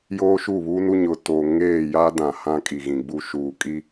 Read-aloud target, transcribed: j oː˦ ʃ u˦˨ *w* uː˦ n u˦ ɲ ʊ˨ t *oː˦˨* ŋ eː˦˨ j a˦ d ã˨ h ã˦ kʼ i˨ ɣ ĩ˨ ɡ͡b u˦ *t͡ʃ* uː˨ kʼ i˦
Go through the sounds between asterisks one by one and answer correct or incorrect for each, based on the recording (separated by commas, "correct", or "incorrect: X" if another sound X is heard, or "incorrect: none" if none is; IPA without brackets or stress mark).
incorrect: β, incorrect: oː˨, incorrect: ʃ